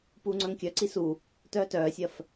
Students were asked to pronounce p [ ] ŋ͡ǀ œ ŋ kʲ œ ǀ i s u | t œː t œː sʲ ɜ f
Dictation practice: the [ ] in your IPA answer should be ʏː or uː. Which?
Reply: uː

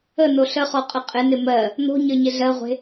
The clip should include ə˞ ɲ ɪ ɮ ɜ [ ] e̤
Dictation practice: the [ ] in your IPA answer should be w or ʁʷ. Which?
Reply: ʁʷ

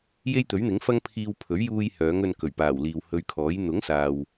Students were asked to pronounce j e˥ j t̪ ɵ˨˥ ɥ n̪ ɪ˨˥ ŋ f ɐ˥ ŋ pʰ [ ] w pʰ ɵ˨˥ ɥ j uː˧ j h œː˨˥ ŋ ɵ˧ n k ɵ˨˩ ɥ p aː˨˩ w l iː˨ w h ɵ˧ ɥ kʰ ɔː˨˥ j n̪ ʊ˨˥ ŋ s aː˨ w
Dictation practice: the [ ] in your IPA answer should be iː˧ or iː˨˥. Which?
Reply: iː˧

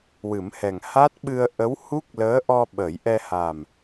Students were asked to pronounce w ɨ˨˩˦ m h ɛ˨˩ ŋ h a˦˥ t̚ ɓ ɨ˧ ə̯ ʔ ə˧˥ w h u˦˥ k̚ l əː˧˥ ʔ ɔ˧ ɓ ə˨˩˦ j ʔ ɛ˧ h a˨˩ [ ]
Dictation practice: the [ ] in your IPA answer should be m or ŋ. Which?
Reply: m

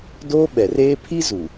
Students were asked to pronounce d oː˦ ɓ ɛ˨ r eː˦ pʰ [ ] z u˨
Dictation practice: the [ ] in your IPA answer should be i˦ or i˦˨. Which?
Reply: i˦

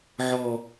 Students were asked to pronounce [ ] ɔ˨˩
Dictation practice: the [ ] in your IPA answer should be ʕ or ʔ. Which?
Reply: ʕ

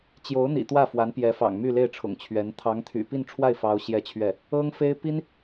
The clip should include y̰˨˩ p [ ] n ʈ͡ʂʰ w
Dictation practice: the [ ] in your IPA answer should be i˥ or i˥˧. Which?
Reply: i˥˧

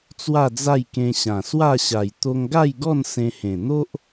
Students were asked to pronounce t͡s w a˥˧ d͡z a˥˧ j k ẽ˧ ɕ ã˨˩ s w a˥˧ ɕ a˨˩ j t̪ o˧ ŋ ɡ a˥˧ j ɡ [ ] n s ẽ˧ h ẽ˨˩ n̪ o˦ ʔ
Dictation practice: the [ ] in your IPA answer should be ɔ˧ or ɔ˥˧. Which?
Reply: ɔ˥˧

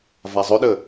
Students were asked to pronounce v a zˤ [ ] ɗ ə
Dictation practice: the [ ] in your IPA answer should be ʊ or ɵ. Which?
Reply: ɵ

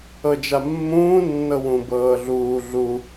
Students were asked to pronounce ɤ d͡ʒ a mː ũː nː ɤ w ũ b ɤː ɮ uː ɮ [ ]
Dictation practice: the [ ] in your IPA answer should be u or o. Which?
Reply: u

